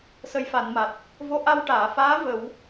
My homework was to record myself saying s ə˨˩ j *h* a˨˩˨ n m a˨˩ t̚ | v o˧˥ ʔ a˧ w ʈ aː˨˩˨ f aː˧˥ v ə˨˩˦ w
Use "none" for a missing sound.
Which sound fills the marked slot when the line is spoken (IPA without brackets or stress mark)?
f